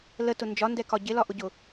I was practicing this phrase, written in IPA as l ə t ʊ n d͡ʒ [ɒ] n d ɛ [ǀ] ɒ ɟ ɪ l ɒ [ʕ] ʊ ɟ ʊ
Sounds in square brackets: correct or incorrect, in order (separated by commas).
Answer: correct, incorrect, incorrect